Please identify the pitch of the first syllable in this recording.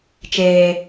high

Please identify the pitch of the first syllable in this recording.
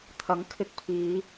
rising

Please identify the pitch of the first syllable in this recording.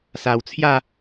low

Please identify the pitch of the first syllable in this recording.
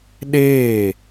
falling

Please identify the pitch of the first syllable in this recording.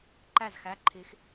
falling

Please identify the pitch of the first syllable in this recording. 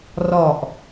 low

